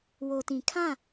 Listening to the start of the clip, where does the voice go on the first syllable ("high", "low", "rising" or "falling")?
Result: low